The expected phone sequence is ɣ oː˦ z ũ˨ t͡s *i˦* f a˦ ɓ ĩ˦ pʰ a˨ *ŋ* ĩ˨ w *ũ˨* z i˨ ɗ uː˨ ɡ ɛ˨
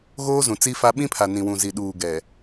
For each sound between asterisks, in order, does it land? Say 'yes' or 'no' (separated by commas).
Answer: yes, no, yes